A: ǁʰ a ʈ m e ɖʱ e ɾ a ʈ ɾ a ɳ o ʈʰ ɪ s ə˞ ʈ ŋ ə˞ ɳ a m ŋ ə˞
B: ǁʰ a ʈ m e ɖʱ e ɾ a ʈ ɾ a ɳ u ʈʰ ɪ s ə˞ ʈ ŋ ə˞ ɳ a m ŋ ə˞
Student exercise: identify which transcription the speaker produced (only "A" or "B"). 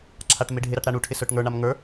B